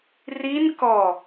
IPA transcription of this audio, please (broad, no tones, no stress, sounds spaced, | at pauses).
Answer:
r i n k ɔ